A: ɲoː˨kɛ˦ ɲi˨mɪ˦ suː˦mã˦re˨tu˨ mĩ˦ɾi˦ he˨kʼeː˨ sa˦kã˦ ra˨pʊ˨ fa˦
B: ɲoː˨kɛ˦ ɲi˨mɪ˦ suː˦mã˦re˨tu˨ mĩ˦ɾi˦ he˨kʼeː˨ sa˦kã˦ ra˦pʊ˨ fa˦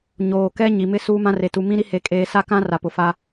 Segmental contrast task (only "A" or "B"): A